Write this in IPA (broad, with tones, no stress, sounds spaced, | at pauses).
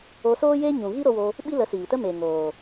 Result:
o˧ s oː˦ j e˦ ɲ ũ˨ ɣ i˦ ɾ o˧ w o˧ | ɓ i˦ l ə˨˦ s iː˨ t ə˦ m e˨ ŋ oː˨